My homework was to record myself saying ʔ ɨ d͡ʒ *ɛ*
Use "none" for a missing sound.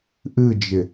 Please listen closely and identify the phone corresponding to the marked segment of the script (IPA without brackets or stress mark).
ɪ